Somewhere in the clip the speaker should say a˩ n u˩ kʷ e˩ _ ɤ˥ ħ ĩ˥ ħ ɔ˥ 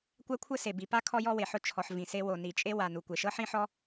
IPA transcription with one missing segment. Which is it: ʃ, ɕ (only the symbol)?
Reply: ʃ